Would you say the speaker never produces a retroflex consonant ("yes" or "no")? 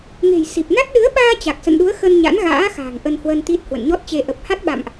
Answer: yes